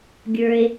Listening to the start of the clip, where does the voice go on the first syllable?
low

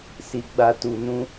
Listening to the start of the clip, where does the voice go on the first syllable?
low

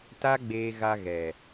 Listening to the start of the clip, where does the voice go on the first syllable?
high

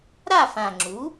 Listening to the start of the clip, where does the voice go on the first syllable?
falling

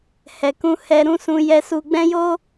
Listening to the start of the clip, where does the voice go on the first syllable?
low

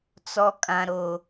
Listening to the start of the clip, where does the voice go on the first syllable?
low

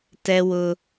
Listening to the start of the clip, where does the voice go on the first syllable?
high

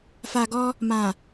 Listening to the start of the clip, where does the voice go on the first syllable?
low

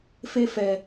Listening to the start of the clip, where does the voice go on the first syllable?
high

